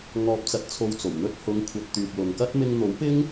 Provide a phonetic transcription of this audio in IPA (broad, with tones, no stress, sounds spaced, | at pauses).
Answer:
ŋ ɔː˧ p̚ t͡s ɐ˧ t̚ t͡sʰ o˧ w t͡s o˨˩ w n̪ ɵ˧ t̚ h ʊ˨˧ ŋ kʷʰ ɐ˨ t̚ t̪ yː˨ k̚ l ʊ˨ ŋ k ɐ˥ t̚ m ɪ˧ ŋ n̪ o˨˥ w p ɪ˥ ŋ